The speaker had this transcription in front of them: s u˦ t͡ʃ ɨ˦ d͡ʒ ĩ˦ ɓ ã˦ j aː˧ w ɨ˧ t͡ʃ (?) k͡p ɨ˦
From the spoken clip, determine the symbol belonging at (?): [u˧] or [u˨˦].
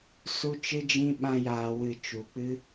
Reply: u˨˦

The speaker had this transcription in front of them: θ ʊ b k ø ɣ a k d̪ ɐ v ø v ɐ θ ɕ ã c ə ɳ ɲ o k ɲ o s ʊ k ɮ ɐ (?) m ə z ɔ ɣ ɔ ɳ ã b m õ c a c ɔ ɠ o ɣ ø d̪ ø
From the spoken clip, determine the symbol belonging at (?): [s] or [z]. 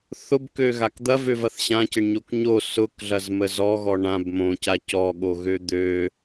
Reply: z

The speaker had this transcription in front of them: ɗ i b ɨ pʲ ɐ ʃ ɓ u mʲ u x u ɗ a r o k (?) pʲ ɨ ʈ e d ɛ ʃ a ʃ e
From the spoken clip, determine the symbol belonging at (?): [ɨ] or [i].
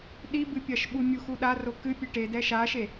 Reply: ɨ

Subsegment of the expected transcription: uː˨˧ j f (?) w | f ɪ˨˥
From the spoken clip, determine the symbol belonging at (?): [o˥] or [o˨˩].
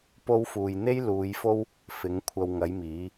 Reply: o˥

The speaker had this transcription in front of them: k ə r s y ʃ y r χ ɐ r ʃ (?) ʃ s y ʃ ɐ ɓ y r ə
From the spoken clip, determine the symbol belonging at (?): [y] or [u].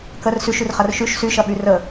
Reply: y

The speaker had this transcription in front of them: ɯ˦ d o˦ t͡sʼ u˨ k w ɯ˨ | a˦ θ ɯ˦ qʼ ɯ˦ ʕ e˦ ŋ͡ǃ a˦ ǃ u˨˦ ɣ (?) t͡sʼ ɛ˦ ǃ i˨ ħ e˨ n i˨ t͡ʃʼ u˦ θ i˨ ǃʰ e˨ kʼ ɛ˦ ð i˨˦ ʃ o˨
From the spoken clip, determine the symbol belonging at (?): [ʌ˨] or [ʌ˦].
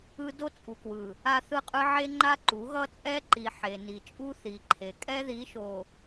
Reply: ʌ˦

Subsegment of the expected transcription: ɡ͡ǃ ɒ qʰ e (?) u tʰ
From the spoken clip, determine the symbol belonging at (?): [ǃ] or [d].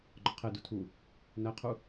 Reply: d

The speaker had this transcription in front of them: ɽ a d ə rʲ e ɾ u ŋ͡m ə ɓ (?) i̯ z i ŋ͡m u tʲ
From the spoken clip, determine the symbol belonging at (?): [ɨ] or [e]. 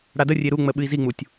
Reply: ɨ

